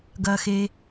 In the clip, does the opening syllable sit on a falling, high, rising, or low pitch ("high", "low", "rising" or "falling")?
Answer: low